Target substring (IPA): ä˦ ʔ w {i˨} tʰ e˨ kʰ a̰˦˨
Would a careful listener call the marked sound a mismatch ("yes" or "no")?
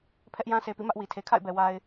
no